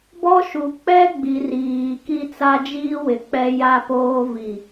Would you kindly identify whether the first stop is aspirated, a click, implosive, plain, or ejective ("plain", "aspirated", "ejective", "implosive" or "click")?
plain